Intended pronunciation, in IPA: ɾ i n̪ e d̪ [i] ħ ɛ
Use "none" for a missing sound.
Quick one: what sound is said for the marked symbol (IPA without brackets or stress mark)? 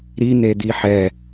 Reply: i